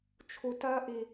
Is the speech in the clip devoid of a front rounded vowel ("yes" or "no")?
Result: yes